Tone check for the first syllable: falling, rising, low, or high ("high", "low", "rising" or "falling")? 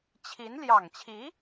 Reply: rising